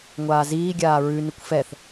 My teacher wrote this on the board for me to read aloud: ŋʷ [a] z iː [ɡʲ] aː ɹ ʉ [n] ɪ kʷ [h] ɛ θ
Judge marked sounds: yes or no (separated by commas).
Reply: no, yes, yes, no